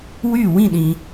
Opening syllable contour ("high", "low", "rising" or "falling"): falling